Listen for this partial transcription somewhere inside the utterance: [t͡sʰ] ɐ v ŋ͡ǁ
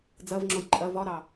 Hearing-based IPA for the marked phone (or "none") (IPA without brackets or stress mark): d͡z